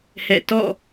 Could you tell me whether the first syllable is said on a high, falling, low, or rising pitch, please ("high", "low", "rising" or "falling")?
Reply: falling